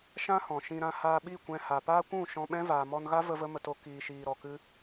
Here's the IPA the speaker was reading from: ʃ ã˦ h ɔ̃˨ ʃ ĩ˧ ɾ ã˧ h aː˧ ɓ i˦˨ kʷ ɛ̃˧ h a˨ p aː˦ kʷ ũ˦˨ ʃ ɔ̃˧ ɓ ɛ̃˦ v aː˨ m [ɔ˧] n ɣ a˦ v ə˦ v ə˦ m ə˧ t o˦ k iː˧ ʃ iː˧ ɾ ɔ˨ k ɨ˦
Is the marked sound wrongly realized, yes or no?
no